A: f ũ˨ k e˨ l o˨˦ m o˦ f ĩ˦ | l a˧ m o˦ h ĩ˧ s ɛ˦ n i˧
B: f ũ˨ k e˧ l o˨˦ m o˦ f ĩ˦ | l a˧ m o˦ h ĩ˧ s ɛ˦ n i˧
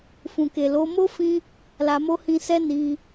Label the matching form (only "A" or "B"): A